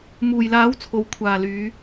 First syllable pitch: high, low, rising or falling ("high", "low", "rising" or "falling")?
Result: low